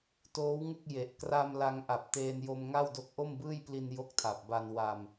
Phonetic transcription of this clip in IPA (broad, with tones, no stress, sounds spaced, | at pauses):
t oː˦˥ w ŋ u˥˩ k̚ j e˨˩ ʔ k r a˧ m l a˧ ŋ ʔ a˨˩ p̚ t eː˧ n j o˧ m ŋ a˥˩ w d o˦˥ k̚ ʔ o˥˩ m b ɯː˥˩ j p l i˧ n j o˥˩ k̚ tʰ a˨˩ p̚ b a˧ n w a˧ m